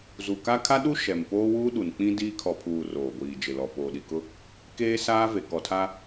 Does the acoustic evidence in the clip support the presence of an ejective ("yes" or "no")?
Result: no